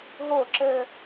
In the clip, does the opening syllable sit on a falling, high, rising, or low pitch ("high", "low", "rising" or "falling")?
falling